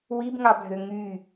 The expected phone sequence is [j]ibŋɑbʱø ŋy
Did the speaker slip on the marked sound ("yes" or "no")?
yes